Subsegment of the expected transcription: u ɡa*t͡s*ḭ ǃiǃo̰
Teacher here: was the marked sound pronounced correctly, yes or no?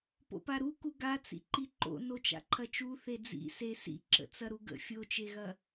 yes